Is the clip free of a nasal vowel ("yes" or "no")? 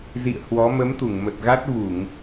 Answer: yes